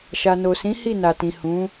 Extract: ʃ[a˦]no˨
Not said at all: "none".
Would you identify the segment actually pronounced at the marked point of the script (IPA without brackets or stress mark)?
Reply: a˨